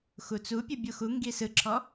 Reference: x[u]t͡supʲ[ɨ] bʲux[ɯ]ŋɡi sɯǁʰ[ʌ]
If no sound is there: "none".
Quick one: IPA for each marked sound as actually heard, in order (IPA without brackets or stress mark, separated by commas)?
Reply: u, ɨ, u, ɔ